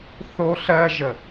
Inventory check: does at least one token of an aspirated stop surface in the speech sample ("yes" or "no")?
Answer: no